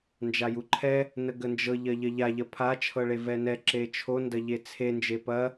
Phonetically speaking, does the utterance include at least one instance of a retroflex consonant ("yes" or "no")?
yes